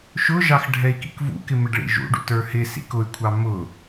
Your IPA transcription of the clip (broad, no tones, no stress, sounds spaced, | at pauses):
ʃ ʊ ʒ ɑ x ɖʱ ɛ i̯ k ḭ k v ṵ k ɪ m ɪ ɖ ɭ ḭ ʒ ṵ ɖ ṵ t ə˞ h ɪ s ḭ k ʊ y̯ kʷʰ ɑ m ʊ